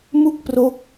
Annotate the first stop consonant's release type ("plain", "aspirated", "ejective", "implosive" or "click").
plain